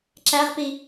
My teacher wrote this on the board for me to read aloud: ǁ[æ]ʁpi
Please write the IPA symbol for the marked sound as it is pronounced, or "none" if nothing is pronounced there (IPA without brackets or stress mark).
æ